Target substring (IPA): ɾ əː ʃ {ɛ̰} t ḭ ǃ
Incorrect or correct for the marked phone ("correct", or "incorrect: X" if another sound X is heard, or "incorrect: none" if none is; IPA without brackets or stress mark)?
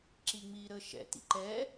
correct